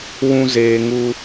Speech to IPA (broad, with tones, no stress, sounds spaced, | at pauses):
w ũ˧ z eː˨ ŋ u˧